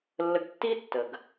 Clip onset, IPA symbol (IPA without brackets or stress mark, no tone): lː